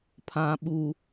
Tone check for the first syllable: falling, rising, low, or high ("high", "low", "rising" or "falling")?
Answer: low